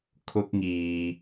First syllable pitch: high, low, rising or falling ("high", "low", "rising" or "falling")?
high